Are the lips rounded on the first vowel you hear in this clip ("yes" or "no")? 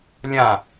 no